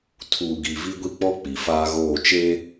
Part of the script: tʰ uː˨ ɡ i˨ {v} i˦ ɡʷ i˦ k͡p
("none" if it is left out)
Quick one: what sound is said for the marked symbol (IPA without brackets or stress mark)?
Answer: v